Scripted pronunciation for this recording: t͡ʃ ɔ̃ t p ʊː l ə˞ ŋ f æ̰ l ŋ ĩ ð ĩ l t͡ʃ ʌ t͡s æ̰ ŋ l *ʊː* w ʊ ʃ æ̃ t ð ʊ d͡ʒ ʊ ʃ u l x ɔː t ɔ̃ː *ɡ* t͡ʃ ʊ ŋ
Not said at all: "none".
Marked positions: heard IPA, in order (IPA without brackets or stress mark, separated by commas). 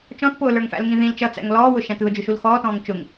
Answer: ɔː, ŋ